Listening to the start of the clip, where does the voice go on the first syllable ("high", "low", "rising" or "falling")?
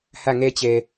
falling